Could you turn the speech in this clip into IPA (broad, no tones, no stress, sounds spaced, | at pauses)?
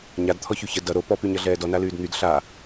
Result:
ɲ a d t̪ʰ ɔ ç y ç ə d ʌ ɾ o p ɔ p y ɲ ʌ ɮ ɛː d ɔ n a l yː d n̪ y d ɬ a